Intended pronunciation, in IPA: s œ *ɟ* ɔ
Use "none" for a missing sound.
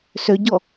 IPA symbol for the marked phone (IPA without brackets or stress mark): ɟ